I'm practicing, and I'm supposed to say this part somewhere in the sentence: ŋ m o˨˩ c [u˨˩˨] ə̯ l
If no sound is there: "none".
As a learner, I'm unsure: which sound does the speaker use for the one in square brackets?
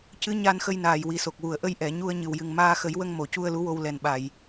u˧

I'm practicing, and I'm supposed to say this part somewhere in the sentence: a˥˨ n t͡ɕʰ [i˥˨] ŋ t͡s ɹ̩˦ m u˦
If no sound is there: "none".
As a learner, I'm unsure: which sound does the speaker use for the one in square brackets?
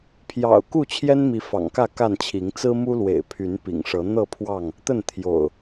i˨˦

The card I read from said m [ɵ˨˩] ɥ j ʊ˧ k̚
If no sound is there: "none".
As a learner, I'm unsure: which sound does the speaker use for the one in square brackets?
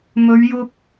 ɵ˨˧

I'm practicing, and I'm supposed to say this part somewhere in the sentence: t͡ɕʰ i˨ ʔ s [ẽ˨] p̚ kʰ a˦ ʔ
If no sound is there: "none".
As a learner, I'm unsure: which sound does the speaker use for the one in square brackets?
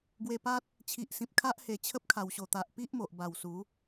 ĩ˨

